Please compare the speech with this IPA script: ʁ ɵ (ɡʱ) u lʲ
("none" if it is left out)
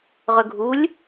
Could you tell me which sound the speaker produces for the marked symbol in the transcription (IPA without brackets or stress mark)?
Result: ɡʱ